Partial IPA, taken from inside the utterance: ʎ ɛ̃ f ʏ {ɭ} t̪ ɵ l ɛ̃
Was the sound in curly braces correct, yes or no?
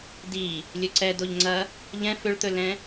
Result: yes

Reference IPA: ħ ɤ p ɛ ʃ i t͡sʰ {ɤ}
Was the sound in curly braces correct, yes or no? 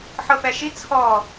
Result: no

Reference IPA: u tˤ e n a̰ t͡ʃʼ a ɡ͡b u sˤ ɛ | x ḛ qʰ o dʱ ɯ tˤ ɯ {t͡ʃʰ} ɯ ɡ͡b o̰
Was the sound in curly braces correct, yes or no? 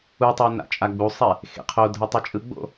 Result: no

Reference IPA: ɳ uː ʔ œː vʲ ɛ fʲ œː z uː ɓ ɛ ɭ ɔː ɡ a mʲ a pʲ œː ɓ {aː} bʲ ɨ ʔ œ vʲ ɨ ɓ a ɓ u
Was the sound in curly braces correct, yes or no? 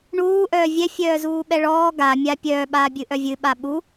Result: yes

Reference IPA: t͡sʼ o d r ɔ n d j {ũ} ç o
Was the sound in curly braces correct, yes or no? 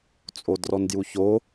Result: no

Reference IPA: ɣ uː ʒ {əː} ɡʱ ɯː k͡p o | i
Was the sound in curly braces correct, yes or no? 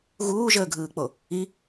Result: yes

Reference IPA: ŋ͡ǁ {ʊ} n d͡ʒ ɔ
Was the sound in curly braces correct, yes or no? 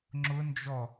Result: yes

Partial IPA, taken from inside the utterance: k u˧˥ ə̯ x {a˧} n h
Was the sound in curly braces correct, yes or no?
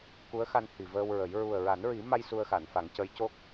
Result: yes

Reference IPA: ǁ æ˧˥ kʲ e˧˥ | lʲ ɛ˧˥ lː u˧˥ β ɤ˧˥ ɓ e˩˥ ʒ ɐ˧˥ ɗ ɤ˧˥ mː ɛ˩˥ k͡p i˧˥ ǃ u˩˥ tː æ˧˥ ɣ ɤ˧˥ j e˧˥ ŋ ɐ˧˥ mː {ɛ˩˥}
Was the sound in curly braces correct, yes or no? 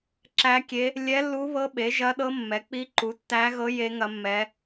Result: no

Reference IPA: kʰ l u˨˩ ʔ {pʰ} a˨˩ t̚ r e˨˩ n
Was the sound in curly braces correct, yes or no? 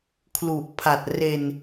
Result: yes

